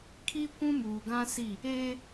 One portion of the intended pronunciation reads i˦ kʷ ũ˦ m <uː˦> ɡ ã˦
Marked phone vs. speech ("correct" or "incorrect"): incorrect